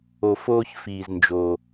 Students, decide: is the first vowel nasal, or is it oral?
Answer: oral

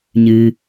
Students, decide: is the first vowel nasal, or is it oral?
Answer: oral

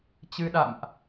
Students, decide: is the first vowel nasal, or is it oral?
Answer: oral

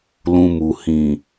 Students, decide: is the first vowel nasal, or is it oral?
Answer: nasal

